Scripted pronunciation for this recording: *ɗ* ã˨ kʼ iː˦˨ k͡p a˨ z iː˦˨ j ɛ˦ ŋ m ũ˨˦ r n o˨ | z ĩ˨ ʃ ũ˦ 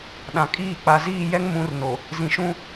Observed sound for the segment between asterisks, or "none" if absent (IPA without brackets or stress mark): ɗ